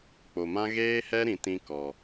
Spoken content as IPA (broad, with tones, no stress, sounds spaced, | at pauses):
k͡p o˨ m ã˦ ɣ eː˦ h ɛ˦ ɾ ĩ˨ t ĩ˦ k ɔ˨